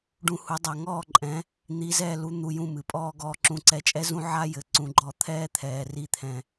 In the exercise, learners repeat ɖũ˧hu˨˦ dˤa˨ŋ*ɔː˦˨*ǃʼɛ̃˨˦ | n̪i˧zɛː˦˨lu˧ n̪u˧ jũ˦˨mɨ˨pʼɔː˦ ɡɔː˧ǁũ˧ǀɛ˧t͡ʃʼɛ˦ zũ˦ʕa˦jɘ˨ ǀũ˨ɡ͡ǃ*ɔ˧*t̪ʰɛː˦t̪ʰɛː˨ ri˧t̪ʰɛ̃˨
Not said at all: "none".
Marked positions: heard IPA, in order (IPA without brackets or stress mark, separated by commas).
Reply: ɔː˦˨, ɔ˧